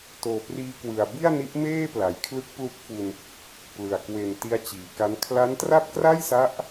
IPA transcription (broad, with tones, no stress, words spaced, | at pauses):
toː˨˩priː˧kwɯ˨˩a̯ bi˥˩a̯ni˦˥ʔmeː˥˩ pla˩˦jkʰlɯ˦˥k̚ plu˦˥k̚fu˧n | plɯ˨˩a̯ kwe˨˩n ti˦˥a̯t͡ɕiː˨˩ka˦˥n kʰla˦˥ntra˥˩p̚ kra˥˩jsa˦˥ʔ